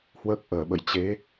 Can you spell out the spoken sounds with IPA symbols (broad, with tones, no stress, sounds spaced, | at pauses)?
h w əː˦˥ k̚ ʔ əː˧˩ ɓ ə̰˧˨ j t͡ɕ e˨˦